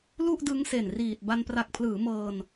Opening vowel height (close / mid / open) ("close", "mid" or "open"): close